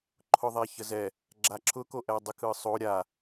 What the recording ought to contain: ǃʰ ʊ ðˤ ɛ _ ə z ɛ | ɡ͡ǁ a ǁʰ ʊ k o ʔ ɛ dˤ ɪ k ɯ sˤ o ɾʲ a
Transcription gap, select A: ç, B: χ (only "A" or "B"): A